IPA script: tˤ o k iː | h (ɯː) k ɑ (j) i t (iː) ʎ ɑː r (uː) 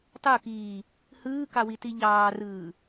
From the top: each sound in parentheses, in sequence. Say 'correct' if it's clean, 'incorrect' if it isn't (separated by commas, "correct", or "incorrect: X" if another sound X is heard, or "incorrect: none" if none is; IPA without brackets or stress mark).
correct, incorrect: w, incorrect: i, incorrect: ɯː